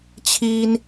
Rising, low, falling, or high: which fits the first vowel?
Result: high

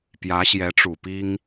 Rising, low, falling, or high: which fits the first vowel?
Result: rising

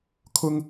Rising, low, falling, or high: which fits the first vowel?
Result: high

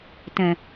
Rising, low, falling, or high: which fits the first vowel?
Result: low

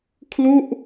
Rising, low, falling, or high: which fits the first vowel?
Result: falling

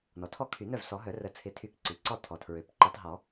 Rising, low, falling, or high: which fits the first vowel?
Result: low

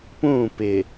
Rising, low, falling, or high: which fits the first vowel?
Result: falling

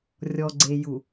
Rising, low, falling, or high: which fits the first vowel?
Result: low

